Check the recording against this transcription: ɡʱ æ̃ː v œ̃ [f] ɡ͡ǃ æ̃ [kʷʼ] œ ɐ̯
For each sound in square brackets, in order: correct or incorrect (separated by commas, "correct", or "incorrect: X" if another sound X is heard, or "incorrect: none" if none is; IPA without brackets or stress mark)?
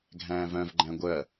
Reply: incorrect: v, incorrect: ɡʷ